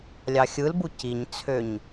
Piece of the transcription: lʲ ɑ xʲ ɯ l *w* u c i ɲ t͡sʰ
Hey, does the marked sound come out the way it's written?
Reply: no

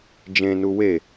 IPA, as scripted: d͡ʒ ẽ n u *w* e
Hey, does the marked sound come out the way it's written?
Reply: yes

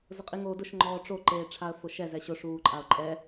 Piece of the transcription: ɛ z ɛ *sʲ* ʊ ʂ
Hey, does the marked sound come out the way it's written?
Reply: no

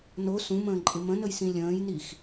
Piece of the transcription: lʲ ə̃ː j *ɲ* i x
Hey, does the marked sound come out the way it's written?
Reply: no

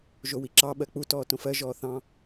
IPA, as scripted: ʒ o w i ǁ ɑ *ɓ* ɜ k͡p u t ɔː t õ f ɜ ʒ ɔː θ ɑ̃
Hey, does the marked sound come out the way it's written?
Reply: yes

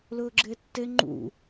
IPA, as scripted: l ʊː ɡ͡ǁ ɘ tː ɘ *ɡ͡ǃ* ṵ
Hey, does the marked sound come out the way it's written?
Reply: no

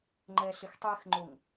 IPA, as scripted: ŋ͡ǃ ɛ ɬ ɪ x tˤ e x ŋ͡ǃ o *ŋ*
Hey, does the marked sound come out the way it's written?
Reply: yes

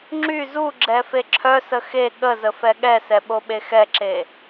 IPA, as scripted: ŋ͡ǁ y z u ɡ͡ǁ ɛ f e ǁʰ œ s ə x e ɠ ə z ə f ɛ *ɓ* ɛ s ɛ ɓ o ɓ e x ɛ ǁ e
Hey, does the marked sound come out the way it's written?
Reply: no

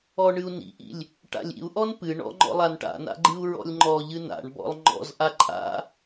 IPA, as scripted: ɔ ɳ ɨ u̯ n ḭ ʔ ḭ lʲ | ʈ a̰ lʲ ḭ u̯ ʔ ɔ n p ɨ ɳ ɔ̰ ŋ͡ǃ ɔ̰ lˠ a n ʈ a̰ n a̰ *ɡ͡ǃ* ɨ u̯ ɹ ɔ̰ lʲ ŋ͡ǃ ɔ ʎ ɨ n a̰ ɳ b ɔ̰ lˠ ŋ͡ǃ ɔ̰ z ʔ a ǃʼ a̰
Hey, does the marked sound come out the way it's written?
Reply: yes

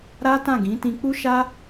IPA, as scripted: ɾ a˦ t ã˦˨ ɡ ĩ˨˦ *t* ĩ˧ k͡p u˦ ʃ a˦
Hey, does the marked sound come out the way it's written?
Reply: yes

